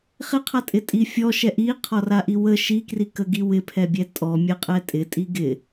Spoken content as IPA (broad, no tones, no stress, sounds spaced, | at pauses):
χ ɪ qʰ a tʼ ɪ tʼ i fʲ ɔ ʃ ɛ ʔ i qʰ ɔ r a ʔ i w ə ʃ i k r i k ə ɡ i w ɪ pʰ ɛ bʲ ɛ tʼ ɔ mʲ ə qʼ ɛ tʼ ɪ tʼ i ɡ ɪ